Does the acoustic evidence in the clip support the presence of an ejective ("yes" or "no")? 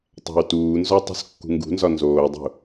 no